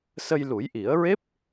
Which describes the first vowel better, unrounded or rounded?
unrounded